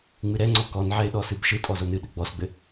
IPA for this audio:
ŋ͡m ɨ ɾ ɛ ŋ͡ǀ ɔ k ɔ n ʕ ɛ ɪ̯ ɗ ɔ s ɨ b ʃ ɯ tʼ ɔ z o n ɨ ɗ ɘ ɡ͡b ɔ s ɡ͡b ɘ

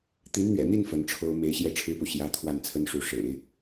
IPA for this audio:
t̪ i˧˥ n n̪ ɥ ɛ̰˨˩ n̪ i˥˩ n f ə˧˥ n ʈ͡ʂʰ o˥ ʊ̯ m e˧˥ ɪ̯ ɕ j ɛ˥˩ ʈ͡ʂʰ ɻ̩˥ p u˨ ɕ j ä˧˥ t̪ʰ w a˥˩ n t͡sʰ ə˥ n ʂ u˧˥ ʂ ḛ˨˩˦ ɪ̯

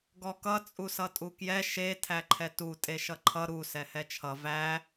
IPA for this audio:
ɡ ɔ k ʌ t͡sʼ u s ʌ tʼ u k j ɛ ʃ e tʰ æ ǃʰ ɛ t u tʼ e ʃ ʌ ǃʰ ʌ ɾ u s ɛ h ɛ t͡ʃʰ ʌ v æ

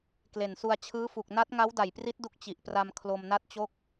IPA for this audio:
k l e˨˩ n s u˧ a̯ t͡ɕʰ ɯː˦˥ f u˨˩ k̚ n a˦˥ t̚ ŋ a˦˥ w d a˨˩ j p r i˦˥ t̚ d u˦˥ k̚ t͡ɕ i˨˩ ʔ p r a˧ m kʰ l o˧ m n a˥˩ t̚ t͡ɕ o˥˩ k̚

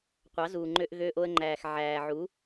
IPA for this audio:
qʷ ɑ˨˦ z uː˨ ŋ͡ǃ ø˧ ʔ ɣ øː˧ ʔ o˧ ə̯ ŋ͡ǃ æː˨ x ʕ æː˨ ʕ u˨˦

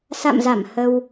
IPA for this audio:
s a̰˧˨ m z a˧˩ m h ə˧ w

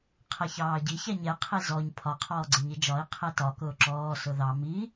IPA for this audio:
qʰ æ ç ɑː ɟ i ç æ ɲ ɛ qʰ i z ɔ ɲ pʰ ɒ qʰ ɔː ɡ͡ǀ ɪ ɲ i d͡ʒ ɒ i̯ qʰ ɛ t ɒ k ʊː ǁ ɔː s ʊ ð ɑ m i

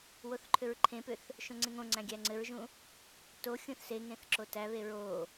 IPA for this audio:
w o θ ǃʰ ʏ ɹ ǃʰ ẽ p ʏ θ | ʃ õ ŋ͡ǀ ẽ ŋ õ ŋ͡ǀ æ̃ ɡʲ æ ŋ͡ǀ ɘ ɹ ʒ ũ | t o xʲ ũ θ s e ŋ ẽ θ ǁ o t æ β e ɹ o

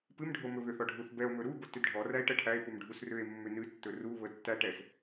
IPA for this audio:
p ɨ m ɖʱ o m ɵ β ʏ θ ɔ ɖʱ u θ b ɛ o̯ m ɵ ɾ u b o t ʏ d ɖʱ ɔ r æ e̯ ʈ ə ʈʰ æ e̯ p u m ɖʱ u s r ʏ e̯ mː ʏ n ɨ tː ɵ r u β ə tː æ ʈ ɛ s

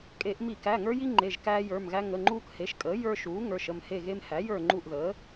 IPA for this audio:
kʼ e˧˩˧ ʔ m i˧˩˧ k æ˩˧˩ ŋ ə˞˦ j i˦ ŋ͡ǃ e˩˧˩ ʒ k æː˦ j ə˞˩˧˩ m ɣ æ˦ ŋ ə˩˧˩ ŋ͡ǃ uː˦ k h e˩˥ ʃ kʼ əː˩˥ j ə˞˦ ʃ uː˩˥ ŋ ə˞˩˧˩ ʃ ə˦˨ m h e˦˨ ɣ e˦ m h æ˩˥ j ə˞˦˨ ŋ͡ǃ u˦˨ ʔ ð əː˩˥

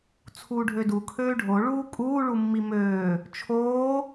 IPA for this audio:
t͡sʰ uː ɖʱ ø d u kʰ øː ɖʱ o ɭ uː kʼ uː ɭ u mː i m øː | t͡ʃʰ oː

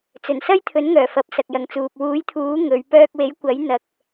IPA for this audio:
t͡s ɵ˨˩ n s ɐ˥ j t̪ʰ ɵ˨˥ n ŋ œː˨˩ f ɐ˨˥ p̚ s ɐ˨ k̚ j ɐ˨ ŋ t͡s uː˨ p̚ w uː˨˥ j t̪ʰ uː˨˥ ŋ ɵ˨˧ ɥ p œː˧ k̚ w e˨˥ j kʷ ɐ˨˥ j n̪ ɐ˧ k̚

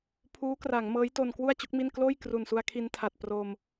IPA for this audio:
pʰ uː˦˥ k r a˩˦ ŋ m ɤː˦˥ j t o˧ n k w u˥˩ a̯ t͡ɕ u˦˥ k̚ m i˥˩ n k l oː˥˩ j k r u˨˩ n s u˧ a̯ kʰ i˧ n tʰ a˨˩ t̚ p r o˧ m

